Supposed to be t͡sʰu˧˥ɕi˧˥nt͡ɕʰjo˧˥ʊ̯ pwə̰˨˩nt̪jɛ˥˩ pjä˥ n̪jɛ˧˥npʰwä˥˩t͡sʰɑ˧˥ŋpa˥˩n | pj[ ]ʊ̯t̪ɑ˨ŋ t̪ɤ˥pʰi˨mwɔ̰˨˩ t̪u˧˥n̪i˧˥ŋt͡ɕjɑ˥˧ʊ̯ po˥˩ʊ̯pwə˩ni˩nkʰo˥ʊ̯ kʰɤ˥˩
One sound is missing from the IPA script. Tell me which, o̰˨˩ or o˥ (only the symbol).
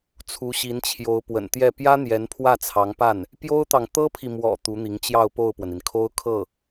o˥